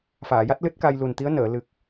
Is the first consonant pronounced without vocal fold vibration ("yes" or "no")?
yes